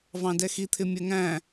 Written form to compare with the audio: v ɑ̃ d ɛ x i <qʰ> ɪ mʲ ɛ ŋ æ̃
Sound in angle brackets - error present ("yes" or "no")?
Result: yes